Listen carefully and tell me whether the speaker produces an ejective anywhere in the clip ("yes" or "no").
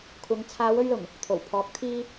no